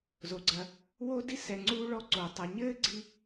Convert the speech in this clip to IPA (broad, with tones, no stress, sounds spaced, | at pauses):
z o˩ ɡ͡ǀ ɐ˨ | w o˦ d i˥ s ɛ˨ ŋ͡ǀ uː˦ ɭ ɔ˦ ǀ o˩ tˤ ɐ˨ ɲ ɘː˥ ɡ͡ǀ i˥